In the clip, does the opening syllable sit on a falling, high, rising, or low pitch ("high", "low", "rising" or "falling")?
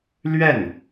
falling